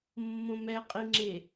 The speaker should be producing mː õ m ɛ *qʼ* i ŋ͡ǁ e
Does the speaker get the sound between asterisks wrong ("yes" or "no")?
no